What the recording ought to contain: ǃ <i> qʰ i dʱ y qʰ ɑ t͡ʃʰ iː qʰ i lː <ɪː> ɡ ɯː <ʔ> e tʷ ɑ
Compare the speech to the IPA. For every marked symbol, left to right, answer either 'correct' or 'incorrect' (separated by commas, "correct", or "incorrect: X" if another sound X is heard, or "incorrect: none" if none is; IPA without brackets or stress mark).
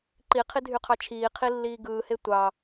correct, incorrect: iː, incorrect: h